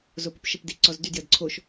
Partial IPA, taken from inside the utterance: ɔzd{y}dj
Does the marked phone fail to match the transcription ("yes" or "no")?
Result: no